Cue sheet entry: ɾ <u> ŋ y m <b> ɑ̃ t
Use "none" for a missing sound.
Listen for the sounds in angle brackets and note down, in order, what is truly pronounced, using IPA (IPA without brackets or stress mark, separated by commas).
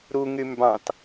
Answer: u, b